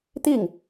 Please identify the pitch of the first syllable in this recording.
falling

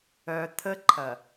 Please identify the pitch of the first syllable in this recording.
low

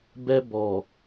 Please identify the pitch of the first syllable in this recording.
high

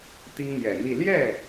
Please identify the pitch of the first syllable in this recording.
high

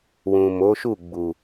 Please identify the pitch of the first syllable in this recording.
low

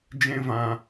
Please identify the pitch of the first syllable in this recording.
high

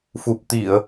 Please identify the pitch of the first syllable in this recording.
low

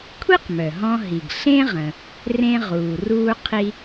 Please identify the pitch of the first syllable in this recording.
high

